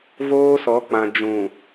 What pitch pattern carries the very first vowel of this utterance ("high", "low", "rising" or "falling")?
high